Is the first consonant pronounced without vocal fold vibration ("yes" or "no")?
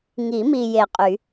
no